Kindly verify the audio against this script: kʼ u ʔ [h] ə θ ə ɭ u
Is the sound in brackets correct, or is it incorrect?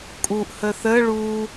correct